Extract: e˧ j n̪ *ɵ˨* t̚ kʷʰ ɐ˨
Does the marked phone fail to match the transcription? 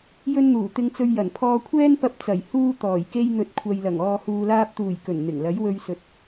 no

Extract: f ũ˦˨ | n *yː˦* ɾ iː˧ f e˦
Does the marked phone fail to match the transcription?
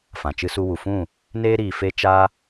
yes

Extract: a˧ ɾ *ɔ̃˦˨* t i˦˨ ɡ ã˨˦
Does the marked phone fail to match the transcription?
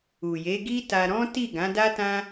yes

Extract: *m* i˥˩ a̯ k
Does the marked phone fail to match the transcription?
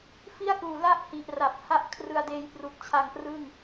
yes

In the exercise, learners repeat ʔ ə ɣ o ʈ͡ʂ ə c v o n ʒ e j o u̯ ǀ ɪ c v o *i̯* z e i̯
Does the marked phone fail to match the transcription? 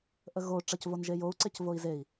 no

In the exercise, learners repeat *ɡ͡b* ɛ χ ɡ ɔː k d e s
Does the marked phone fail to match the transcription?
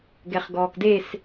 yes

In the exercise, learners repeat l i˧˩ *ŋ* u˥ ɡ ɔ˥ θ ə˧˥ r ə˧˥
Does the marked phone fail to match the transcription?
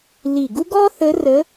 yes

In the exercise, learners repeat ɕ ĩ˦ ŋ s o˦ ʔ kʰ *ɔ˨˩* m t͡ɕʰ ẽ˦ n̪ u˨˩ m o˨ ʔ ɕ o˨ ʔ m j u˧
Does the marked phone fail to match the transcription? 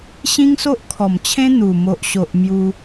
no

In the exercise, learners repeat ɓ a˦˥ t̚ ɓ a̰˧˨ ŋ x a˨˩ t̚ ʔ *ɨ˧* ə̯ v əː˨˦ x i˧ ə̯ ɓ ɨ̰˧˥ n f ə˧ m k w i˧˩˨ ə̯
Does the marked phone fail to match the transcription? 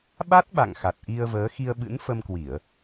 yes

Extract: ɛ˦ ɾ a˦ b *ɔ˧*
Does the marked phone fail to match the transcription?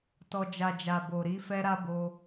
yes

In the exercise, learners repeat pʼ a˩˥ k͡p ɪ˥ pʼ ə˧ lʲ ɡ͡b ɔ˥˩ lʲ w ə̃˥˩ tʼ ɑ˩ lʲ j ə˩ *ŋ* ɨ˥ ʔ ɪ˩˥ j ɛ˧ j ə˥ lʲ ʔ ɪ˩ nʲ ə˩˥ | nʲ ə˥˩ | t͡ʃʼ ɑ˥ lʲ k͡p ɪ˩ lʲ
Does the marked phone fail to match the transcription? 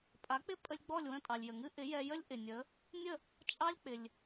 no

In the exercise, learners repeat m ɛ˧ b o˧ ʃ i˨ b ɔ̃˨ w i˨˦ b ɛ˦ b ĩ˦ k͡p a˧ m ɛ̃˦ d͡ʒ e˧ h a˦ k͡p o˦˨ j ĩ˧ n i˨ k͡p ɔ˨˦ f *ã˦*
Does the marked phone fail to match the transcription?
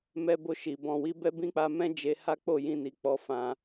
yes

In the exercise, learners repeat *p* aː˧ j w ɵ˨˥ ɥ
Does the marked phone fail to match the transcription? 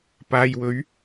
no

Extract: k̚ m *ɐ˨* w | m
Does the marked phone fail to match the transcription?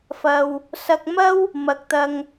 yes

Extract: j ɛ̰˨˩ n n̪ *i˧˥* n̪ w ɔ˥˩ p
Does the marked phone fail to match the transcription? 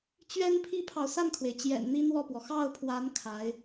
yes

